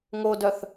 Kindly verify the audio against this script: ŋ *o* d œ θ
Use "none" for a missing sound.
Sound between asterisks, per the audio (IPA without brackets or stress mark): o